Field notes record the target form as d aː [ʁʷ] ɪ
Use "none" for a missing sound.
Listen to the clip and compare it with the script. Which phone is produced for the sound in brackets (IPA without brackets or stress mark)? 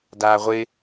ʁʷ